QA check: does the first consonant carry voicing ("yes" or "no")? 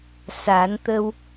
no